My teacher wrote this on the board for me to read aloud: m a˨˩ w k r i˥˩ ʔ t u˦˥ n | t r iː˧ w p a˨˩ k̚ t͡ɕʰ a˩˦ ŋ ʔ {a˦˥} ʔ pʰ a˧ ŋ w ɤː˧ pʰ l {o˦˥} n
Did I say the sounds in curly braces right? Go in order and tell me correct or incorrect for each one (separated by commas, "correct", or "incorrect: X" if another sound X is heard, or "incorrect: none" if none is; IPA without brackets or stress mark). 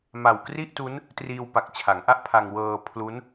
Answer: incorrect: a˥˩, incorrect: u˦˥